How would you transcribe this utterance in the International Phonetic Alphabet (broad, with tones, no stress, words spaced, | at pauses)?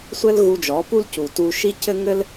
sʷɘ˦l ɣu˧d͡ʒɔ˨˦pu˦l cu˨tu˧ ʃi˦cɘ˦ ŋɘ˦l